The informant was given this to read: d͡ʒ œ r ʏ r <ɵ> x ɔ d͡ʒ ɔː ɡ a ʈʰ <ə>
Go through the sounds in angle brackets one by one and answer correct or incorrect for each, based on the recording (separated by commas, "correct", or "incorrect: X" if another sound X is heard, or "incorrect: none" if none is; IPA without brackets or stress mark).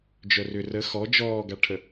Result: incorrect: ə, correct